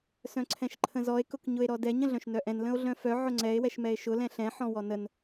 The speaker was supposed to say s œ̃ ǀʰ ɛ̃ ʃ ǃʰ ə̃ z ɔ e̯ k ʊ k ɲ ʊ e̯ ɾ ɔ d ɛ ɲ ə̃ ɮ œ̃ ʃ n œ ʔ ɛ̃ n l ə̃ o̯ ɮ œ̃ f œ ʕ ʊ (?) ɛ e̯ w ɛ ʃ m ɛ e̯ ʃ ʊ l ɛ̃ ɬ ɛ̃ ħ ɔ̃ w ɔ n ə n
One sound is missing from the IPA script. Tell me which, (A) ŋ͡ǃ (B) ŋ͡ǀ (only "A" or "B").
B